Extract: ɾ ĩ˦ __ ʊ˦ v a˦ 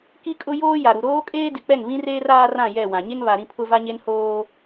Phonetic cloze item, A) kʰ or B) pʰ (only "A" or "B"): B